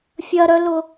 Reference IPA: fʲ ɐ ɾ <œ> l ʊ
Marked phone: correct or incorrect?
correct